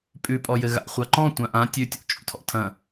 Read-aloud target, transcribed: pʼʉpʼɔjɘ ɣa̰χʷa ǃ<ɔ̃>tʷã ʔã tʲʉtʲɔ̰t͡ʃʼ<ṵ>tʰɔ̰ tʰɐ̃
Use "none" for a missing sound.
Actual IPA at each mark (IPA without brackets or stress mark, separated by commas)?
ɔ̃, ṵ